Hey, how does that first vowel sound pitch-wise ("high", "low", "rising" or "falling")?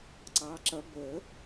rising